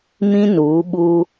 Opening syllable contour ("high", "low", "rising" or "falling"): high